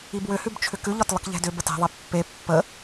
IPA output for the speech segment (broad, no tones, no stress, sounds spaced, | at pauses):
i b w ʏ h ʉ b t͡ʃʰ ʏ k ʉ ʎ ɒ t lˠ ə k ʎ ɛ̤ d ʏ b ə t ɛ̤ ðˤ e pː e pː ə